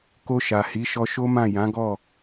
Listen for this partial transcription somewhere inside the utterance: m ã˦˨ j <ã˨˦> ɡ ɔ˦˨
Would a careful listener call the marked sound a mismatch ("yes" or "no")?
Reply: no